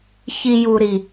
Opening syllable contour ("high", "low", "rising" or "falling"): low